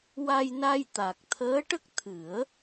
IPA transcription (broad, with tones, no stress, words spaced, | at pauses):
wa˧jna˧j t̪a˨˩k̚ t̪ʰəː˧˥ʈə˦˥k̚t̪ʰɨ˨˩˦ə̯